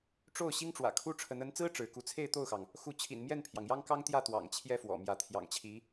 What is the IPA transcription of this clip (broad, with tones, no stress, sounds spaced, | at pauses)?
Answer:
ʈ͡ʂ o˥˩ ʊ̯ ɕ i˥ ŋ ʈ͡ʂ w ä̰˨˩ kʰ u˥ ʈ͡ʂʰ ə˧˥ n ə˧˥ n t͡s ɹ̩˥ ʈ͡ʂ ɻ̩˧˥ k u˥˧ t͡sʰ e˥˧ ɪ̯ t̪ o˥˩ ʊ̯ x ɑ˩ ŋ | x u˥˩ t͡ɕʰ ḭ˨˩ n m j ɛ˥˩ n pʰ j ɑ˩ ŋ j ɑ˥ ŋ k ɑ˥ ŋ t̪ j ä˥˩ t̪ w ɑ̰˨˩ ŋ t͡ɕʰ j ɛ˥˩ f w ɔ̰˨˩ m j ä˧˥ t̪ʰ j ɑ̰˨˩ ŋ t͡ɕʰ i˧˥